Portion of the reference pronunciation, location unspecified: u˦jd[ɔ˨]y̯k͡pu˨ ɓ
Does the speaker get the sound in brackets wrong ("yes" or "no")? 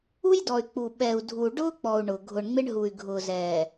no